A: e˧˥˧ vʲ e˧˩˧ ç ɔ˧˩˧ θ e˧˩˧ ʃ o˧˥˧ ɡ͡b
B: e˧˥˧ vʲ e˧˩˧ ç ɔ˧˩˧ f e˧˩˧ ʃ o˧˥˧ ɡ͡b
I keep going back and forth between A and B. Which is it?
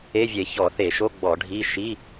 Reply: A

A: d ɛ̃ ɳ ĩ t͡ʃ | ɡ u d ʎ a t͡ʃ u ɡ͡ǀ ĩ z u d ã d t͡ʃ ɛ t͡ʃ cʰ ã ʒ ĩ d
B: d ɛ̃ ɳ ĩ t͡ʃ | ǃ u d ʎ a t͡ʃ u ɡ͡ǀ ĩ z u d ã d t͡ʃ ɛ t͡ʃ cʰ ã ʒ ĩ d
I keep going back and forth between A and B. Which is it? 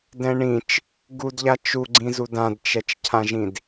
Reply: A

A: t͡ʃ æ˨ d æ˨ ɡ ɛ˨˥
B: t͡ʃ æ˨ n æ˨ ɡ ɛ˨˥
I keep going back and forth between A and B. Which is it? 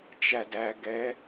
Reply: A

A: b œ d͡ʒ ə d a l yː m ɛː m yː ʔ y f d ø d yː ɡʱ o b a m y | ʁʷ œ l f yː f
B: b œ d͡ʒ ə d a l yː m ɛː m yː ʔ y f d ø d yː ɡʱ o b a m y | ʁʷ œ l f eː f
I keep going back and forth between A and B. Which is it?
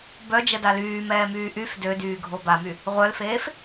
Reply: B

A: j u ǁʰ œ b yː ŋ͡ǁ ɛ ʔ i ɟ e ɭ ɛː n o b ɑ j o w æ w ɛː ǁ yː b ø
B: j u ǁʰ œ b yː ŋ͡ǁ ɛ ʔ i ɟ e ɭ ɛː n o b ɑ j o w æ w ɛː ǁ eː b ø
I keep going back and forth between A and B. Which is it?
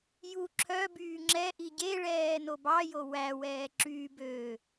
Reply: A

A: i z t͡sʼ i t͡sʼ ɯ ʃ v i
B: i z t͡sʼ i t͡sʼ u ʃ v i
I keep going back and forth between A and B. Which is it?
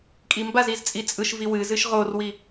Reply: A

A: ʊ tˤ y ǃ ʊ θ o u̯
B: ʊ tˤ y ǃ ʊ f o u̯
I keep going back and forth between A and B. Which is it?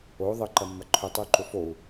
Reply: B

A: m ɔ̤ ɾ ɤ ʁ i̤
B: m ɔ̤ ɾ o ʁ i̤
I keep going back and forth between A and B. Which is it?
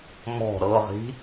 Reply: A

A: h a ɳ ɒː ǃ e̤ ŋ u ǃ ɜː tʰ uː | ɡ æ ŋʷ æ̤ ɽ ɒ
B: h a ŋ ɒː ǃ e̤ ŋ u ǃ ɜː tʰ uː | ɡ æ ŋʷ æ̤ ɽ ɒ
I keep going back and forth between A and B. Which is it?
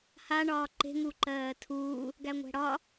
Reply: A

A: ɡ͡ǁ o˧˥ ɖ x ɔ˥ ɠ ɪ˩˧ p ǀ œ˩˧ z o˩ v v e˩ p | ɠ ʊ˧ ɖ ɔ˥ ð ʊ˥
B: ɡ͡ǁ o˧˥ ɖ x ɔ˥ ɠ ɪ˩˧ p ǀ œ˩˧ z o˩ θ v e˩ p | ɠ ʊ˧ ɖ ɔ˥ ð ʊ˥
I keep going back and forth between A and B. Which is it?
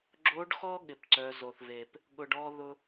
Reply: B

